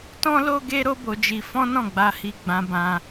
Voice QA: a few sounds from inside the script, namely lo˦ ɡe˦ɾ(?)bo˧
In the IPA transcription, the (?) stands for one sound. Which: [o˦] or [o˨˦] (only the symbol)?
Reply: o˦